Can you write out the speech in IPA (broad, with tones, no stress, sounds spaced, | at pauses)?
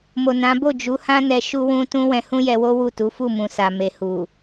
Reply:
m o˨ n ã˨˦ b o˦˨ d͡ʒ u˨˦ h ã˦ n ɛ˧ ʃ u˧ w ũ˧ t ũ˦ w ɛ̃˧ h ũ˦ j ɛ˧ w o˦ w u˦˨ t u˨˦ f u˦˨ m ũ˨ s a˨ m e˨ h u˨